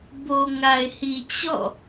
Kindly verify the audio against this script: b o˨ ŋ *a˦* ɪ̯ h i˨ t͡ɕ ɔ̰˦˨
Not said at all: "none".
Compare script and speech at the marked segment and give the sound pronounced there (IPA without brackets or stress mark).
a˨